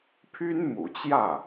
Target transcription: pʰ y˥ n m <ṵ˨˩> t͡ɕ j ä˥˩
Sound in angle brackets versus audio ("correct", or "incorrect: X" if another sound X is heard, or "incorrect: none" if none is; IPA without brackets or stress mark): correct